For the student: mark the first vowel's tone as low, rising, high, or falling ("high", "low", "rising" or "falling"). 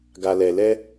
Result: low